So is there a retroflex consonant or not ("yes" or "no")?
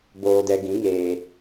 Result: no